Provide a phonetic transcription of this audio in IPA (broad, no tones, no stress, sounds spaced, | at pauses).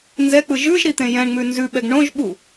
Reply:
n z ɛ k͡p ɯ ʒ ʉ ʒ ɾ i t̪ ẽ j ɛ̃ ɳ ŋ͡m ʉ n z ʉ ɓ ɛ ɡ ɳ õ ʒ ɓ u